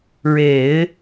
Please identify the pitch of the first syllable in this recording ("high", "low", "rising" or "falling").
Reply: low